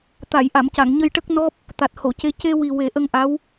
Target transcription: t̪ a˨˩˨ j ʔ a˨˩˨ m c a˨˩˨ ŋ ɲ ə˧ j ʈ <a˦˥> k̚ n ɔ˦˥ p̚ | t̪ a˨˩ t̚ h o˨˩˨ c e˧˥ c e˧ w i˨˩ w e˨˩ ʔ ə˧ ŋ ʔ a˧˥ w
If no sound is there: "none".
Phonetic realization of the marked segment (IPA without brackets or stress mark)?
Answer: ə˦˥